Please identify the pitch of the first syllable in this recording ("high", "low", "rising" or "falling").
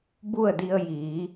falling